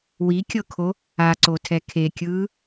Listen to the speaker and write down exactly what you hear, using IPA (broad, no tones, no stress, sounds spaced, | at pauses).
w i kʲ ɤ kʰ o | a ǀ o tʰ ɛ kʰ e kʲ ɯː